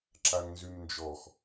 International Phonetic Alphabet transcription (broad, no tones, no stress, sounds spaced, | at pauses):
ǁ a ŋ n z y m n d͡ʒ ɔ x